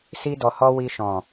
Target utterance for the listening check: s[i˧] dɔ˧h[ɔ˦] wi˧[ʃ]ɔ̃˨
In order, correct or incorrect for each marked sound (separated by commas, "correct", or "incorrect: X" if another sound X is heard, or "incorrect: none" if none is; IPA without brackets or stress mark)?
incorrect: i˦, correct, correct